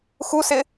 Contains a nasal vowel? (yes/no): no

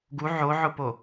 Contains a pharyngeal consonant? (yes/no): yes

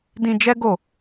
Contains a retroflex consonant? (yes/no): no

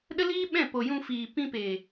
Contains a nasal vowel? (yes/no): yes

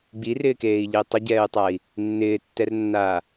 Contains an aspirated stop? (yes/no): no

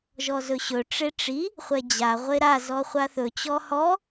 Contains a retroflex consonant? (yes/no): yes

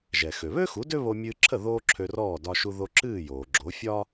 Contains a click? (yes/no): yes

